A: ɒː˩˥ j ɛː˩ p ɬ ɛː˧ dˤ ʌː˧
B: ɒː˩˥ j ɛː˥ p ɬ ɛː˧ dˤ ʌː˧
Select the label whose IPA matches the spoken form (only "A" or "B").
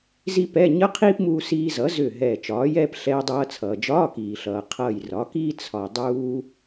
B